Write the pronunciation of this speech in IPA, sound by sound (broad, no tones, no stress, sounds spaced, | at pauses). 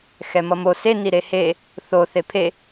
x ɛ m ʌ m o s e n i ɾ e h e | θ o θ e pʰ e